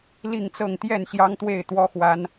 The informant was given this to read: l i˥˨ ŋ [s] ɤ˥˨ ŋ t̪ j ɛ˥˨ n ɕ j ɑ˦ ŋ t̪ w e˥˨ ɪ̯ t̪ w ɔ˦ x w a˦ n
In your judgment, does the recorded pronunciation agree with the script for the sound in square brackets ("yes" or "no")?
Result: no